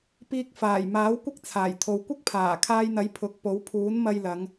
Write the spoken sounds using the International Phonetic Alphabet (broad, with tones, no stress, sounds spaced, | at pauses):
p iː˧ k̚ f aː˨˩ j m aː˨˥ w kʷ ɪ˥ k̚ t͡sʰ aː˨˩ j t̪ʰ o˨ w kʷ ɪ˥ k̚ pʰ aː˨˩ kʰ aː˧ j n̪ ɐ˨˥ j pʰ ʊ˨˥ k̚ p o˨˥ w pʰ uː˨˥ n m ɐ˧ j l ɐ˨˧ ŋ